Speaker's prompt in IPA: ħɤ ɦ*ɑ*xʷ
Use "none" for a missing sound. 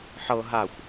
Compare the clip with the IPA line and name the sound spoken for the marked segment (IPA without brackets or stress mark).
a